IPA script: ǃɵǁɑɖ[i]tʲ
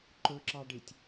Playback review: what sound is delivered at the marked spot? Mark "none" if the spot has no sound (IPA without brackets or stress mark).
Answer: i